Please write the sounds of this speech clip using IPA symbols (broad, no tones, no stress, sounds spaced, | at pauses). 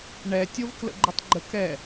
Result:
ɳ ɛ tʲ o v k l ə̰ ɡ͡ǃ ʏ tˤ ɡ͡ǃ ə k ɛ